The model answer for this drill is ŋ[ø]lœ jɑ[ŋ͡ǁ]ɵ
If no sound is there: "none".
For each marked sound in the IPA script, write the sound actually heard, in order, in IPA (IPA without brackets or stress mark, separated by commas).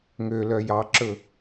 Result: ø, ǁ